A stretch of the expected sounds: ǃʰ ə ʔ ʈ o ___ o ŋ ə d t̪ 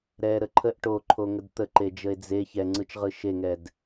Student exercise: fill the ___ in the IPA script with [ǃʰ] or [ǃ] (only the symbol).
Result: ǃʰ